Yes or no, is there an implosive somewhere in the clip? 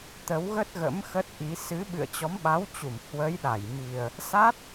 yes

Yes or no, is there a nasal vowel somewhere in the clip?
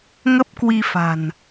no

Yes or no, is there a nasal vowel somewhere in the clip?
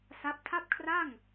no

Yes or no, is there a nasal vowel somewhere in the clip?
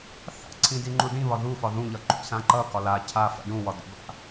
yes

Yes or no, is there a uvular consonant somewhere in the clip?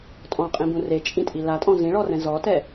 yes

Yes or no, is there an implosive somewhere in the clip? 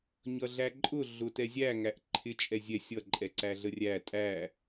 no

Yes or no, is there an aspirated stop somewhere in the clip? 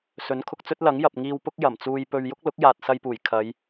yes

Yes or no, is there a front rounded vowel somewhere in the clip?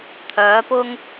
yes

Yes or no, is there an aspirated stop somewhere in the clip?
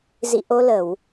no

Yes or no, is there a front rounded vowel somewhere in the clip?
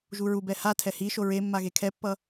no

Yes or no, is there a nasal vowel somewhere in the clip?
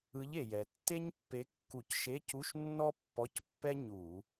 no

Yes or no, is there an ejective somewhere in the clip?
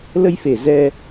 no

